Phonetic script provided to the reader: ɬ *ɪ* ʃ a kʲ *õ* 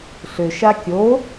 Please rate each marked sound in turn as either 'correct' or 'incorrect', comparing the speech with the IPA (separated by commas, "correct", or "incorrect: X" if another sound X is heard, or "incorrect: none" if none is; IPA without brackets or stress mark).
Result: incorrect: ʏ, incorrect: o